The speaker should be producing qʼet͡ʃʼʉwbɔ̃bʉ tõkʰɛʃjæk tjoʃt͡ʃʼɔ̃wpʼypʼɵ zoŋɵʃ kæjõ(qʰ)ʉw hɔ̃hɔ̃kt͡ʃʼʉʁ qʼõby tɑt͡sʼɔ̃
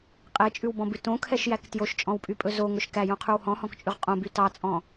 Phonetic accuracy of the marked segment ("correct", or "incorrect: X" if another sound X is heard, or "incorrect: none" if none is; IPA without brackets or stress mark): correct